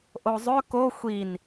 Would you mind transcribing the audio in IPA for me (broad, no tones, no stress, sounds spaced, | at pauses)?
ʔ o zˤ ø k o xʷ i n